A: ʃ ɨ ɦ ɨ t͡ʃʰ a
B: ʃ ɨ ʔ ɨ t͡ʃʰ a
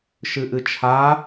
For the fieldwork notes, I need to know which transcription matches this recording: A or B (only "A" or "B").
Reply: B